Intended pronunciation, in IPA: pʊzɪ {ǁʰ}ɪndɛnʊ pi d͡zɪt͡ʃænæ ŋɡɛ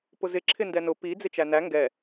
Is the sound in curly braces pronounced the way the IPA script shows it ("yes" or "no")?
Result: yes